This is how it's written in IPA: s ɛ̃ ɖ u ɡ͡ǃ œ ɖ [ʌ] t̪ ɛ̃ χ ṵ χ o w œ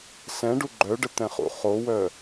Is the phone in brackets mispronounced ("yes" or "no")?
yes